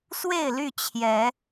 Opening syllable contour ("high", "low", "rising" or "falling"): falling